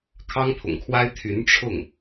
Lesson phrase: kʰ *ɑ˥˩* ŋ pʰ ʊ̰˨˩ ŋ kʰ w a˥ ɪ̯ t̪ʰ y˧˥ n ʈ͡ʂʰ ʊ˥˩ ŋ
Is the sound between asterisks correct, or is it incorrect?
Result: incorrect